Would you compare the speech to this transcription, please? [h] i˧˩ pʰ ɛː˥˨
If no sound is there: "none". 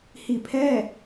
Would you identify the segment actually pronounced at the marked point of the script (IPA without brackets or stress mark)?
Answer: h